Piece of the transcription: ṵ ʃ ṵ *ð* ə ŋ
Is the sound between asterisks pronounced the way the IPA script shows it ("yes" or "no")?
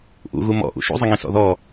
no